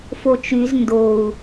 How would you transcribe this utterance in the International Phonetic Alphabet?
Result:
f o t͡ʃ y z n d o u̯

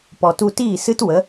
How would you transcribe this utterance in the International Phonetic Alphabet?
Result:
p ɔ˨ t u˧ t iː˦˨ s ɨ˦ t w ə˨˦

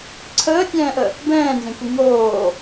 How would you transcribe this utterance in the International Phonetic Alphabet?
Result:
ǀʰ əː tʲ ɛ̃ː ʔ ə | b ɛ̃ː n z ẽ kʷ i ŋ oː

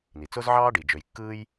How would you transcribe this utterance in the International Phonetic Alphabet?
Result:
n i˩ t͡s o˥ z ʕ ɑː˥ ɖ i˩ d͡ʒ ø˨ j kː ɯː˥ j

